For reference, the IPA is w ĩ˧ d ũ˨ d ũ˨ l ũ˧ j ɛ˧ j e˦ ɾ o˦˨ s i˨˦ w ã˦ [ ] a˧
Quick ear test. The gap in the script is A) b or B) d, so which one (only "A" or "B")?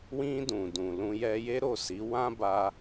A